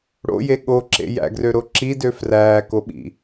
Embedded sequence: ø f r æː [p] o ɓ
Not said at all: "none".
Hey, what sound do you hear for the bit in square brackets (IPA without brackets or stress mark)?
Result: k